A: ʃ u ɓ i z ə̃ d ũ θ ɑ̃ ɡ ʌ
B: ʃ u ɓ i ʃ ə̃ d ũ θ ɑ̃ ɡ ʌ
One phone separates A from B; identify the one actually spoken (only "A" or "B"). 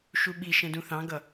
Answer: B